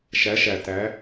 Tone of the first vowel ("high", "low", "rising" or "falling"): rising